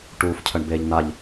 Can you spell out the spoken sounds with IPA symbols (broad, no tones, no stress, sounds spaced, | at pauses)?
ʈ uː f cʰ ə ɳ b eː ʎ n̪ a ʎ